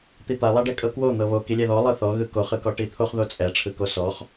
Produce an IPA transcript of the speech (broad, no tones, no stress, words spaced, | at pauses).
t̪it̪a lˠaɖɛkʼɤkwo n̪ɤβo kilʲɛðɔ lˠɯθɔ ɣɯkoχ ɯkɔʈit̪ʰoχ ðot͡sʼɛ ʈ͡ʂʰɯkosɔχ